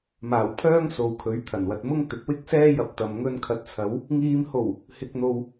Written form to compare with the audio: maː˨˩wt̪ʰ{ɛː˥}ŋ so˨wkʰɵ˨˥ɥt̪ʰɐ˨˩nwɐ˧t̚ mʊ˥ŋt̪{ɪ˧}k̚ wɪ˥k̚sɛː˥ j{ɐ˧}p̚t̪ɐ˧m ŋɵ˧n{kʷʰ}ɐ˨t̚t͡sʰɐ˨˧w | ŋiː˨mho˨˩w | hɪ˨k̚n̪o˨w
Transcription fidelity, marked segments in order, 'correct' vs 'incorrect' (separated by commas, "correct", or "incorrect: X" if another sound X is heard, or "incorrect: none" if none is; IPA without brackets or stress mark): incorrect: œː˥, incorrect: ɪ˨˥, correct, incorrect: kʰ